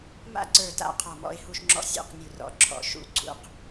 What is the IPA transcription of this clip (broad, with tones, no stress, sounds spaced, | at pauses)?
m a̰˥˨ ǀ ə˞˧˩ t a̰˥˨ qʰ ɔ˧˩ m ɔ̰˥˨ ɪ̯ h u˥˨ ʃ ŋ͡ǁ ɔ̰˥˨ sʲ ṵ˥˨ q nʲ u˧˩ r ɔ̰˧˩ ǁʰ ɔ̰˧˩ ʃ ṵ˥˨ ɡ͡ǀ ṵ˥˨ q